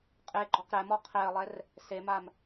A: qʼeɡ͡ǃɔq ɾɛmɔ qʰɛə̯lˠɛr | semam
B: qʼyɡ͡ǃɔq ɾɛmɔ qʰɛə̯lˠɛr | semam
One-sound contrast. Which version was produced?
A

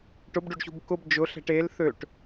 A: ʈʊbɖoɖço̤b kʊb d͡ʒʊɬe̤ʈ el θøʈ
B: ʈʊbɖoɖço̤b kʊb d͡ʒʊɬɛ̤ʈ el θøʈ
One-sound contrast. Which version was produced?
B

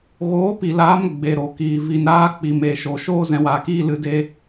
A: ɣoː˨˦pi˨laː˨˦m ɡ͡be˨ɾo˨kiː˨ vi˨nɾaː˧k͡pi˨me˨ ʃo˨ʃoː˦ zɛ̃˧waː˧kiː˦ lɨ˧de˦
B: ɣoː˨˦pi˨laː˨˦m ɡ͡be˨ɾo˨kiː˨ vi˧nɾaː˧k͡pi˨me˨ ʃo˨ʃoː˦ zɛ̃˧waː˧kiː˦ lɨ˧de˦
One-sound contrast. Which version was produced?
A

